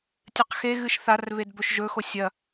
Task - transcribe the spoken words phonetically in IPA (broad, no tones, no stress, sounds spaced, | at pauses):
tʲ ɨ q x e ɣ ɨ ʃ θ a r β e d b ɵ ʃ ʒ ɵ x o sʲ ɐ